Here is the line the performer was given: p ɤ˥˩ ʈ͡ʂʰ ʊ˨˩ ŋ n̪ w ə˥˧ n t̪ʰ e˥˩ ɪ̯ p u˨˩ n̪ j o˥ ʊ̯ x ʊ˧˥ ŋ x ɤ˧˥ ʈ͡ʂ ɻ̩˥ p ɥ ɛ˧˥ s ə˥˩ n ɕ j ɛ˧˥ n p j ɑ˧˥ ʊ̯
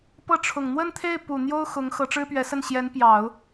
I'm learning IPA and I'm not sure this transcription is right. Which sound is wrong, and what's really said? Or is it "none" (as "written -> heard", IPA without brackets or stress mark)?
ɑ˧˥ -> ɑ˨˩˦